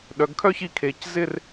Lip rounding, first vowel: rounded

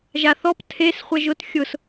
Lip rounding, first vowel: unrounded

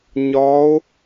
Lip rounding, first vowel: rounded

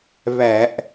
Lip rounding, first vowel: unrounded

